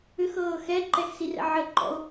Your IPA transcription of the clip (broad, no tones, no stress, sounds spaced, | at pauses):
ʏ x ɤː x ɛ ǃ ɛ x s i r ɛ̰ ʕ ə ǃ ɔ̰ o̯